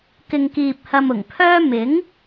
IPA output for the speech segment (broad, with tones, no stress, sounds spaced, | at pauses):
k ɪ˧ ŋ k iː˧ p̚ h ɐ˧ m ʊ˨˩ ŋ pʰ œː˥ m ɪ˨˥ ŋ